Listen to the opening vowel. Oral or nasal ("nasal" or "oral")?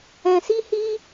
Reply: nasal